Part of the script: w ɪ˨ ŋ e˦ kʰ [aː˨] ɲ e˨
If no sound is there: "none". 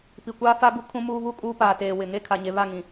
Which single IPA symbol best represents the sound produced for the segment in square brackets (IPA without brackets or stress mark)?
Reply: a˨